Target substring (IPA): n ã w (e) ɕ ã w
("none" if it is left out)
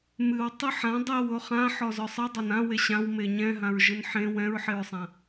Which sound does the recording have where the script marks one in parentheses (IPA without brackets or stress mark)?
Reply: e